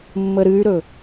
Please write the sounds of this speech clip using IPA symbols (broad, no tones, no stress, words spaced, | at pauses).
mːəɾɨy̯ɾɵ